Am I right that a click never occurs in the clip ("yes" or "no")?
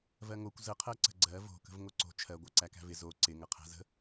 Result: no